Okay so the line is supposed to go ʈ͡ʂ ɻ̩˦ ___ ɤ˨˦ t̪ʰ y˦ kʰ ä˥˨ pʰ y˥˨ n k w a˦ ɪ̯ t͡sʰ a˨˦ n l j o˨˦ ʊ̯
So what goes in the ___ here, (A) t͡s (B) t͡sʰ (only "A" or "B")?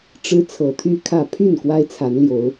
B